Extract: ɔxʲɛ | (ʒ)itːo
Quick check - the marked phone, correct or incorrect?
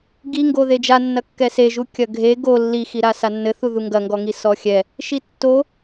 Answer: incorrect